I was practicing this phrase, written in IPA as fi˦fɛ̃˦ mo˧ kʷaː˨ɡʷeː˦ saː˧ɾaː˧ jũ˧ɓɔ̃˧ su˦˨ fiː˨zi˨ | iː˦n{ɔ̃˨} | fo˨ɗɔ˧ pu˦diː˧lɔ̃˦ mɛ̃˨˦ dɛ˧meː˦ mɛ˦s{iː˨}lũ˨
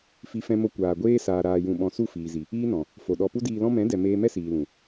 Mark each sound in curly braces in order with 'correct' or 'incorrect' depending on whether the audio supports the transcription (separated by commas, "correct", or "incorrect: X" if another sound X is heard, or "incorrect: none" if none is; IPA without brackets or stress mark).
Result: correct, correct